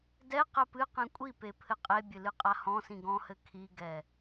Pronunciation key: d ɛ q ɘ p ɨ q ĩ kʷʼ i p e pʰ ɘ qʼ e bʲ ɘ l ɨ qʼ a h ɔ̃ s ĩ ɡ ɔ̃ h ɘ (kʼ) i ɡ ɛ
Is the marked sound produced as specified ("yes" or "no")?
no